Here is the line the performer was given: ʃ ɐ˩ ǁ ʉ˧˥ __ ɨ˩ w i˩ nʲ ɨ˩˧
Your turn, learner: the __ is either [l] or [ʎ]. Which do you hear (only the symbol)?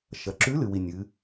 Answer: l